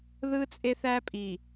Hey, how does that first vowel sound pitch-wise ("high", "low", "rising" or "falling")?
high